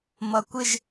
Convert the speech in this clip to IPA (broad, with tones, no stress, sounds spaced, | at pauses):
m ʌ˩ kʷ ɪ˧˩ ʒ